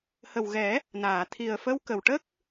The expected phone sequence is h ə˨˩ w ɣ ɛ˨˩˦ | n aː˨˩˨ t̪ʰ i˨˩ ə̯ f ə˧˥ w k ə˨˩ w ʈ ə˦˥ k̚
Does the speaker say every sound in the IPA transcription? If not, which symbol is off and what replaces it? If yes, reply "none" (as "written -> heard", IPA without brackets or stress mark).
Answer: none